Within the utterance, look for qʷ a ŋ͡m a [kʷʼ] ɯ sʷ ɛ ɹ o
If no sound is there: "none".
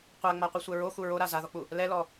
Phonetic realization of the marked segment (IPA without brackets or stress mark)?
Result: qʷ